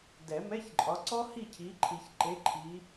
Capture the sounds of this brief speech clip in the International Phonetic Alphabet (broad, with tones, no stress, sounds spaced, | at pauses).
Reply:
d ɛ˨˩˦ m ɛ˧˥˧ ç ǃʼ ɒ˨˦ ǀ ɔ˥ h i˥˨ cʰ i˨˦ ǃʰ i˨ ç ǃ e˨˦ ǃʰ i˨˦